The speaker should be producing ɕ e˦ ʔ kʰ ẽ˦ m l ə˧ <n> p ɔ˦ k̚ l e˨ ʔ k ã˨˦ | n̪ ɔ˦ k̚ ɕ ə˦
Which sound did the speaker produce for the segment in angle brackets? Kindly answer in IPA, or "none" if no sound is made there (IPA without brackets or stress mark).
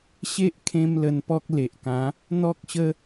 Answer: n